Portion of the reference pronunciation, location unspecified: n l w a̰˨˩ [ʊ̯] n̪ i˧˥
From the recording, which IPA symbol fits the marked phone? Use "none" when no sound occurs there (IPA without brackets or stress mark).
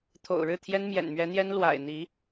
ɪ̯